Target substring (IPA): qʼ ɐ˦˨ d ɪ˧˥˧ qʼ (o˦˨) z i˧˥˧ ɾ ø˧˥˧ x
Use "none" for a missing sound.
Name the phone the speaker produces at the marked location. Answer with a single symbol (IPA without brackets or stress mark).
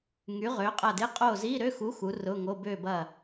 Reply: o˦˨